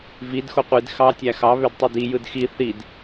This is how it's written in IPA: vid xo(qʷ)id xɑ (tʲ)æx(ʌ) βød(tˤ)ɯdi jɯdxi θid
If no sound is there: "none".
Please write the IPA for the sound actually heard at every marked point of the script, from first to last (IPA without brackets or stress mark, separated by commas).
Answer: qʷ, tʲ, ɑ, tˤ